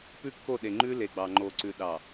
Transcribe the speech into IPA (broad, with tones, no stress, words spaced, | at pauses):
pʉ˦kːo˦˨ɗe˨ŋ͡ǃʉ˦ le˨ɡ͡bɑ˨ŋ͡ǃo˨ ǀʉ˨ ɗɑ˨